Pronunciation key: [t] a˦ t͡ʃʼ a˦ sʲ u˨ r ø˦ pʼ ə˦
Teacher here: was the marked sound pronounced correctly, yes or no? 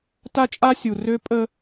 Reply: yes